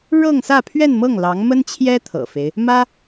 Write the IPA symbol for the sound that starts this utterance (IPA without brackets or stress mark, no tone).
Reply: ɻ